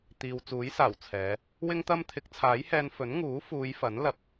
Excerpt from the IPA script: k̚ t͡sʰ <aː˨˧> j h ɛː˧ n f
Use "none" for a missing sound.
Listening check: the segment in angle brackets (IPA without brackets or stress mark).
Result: aː˨˥